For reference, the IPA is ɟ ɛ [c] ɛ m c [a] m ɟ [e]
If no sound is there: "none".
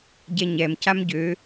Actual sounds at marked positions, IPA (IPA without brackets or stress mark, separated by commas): ɲ, a, ø